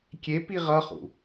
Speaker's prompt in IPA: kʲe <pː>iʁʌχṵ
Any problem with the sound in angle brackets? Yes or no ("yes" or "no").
yes